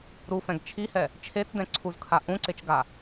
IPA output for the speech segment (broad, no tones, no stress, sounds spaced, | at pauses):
ɾ u f ɛ̃ ɡ t͡ʃʰ i h ɛ | t͡ʃʰ e t͡s d ɛ̃ ǀʰ u z kʰ a ʔ ũ ǀ e t͡ʃ ɡ a